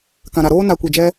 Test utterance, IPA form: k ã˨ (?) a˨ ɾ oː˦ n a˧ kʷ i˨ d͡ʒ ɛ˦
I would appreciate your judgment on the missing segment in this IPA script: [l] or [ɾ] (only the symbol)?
ɾ